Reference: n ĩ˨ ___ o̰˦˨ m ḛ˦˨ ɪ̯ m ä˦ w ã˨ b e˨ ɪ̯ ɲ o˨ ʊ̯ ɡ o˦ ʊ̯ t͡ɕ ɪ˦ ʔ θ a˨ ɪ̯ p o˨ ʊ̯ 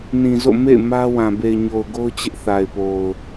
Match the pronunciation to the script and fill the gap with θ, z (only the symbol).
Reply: z